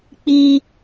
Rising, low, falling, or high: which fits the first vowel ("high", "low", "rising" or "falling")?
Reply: high